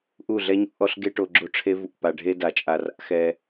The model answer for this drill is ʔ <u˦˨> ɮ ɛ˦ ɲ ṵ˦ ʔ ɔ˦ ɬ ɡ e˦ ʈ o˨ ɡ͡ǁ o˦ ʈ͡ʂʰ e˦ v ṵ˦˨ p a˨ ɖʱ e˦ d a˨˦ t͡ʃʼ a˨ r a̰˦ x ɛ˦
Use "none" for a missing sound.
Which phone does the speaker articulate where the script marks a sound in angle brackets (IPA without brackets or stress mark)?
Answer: u˦˨